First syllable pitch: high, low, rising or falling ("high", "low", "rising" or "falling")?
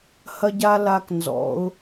high